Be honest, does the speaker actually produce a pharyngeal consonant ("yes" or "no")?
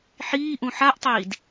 yes